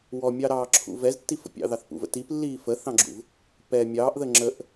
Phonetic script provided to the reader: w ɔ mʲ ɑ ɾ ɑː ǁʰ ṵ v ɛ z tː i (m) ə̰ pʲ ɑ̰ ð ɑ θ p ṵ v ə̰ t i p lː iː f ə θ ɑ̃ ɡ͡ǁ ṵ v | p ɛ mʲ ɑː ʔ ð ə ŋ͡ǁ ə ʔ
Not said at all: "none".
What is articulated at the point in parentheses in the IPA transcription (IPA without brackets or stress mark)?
f